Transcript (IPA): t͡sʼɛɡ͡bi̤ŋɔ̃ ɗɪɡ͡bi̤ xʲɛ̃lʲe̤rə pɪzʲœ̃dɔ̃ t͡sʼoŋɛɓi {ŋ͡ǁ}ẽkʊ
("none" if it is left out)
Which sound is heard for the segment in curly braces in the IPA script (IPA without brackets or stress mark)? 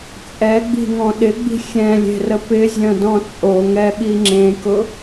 ŋ͡ǁ